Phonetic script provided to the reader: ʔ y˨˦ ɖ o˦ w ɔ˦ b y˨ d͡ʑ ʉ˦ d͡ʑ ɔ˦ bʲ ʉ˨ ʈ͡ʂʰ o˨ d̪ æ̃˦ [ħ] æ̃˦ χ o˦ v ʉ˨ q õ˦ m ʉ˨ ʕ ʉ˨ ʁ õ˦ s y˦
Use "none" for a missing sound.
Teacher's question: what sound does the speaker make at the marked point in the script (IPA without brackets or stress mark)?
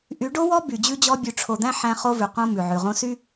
ħ